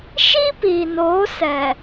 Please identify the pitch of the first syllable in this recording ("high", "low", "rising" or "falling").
high